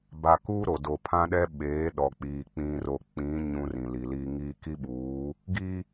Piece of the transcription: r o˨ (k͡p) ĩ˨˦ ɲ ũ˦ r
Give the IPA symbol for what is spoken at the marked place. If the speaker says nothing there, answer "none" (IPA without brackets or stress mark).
k͡p